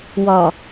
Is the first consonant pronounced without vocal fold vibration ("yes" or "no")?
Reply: no